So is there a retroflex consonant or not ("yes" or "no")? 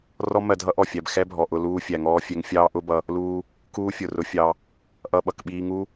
no